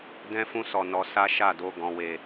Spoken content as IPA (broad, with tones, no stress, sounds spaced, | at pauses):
d ɛ̃˦ f ũ˦ s ɔ˧ n ɔ˧ s a˦ ʃ a˦˨ d o˧ ɡ ɔ̃˨ w e˨